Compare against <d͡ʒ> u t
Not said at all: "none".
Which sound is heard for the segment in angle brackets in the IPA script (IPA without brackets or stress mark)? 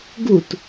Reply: ɡ